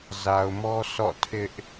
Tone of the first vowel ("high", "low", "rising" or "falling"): low